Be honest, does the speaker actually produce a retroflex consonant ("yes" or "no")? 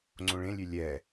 yes